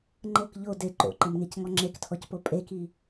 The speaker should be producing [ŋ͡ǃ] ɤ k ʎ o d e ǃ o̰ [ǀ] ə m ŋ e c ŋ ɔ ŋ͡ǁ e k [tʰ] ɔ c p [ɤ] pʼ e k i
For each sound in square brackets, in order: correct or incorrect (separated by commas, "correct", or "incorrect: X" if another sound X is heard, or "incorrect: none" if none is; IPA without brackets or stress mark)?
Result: correct, incorrect: ǃ, correct, incorrect: o